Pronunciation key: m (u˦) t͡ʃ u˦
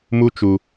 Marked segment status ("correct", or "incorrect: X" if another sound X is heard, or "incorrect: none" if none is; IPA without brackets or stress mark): correct